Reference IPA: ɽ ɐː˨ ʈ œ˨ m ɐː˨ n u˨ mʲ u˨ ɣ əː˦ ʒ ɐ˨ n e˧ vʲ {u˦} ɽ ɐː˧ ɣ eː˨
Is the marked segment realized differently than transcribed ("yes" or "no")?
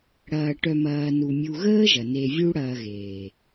no